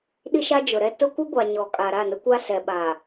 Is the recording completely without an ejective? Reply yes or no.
no